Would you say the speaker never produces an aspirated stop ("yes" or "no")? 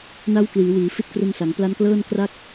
yes